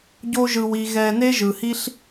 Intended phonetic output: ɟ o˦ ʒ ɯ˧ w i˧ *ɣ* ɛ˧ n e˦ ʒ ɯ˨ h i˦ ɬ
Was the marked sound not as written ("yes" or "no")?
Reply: no